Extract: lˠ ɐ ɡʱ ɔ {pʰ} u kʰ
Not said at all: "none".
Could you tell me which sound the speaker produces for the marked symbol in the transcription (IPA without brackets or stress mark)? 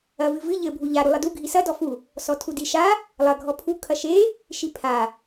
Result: pʰ